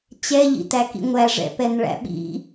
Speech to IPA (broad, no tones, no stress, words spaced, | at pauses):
t͡ɕɛʎḭtækḭ ŋʷæʐɛ̰pɛnɭæ̰ ɓḭ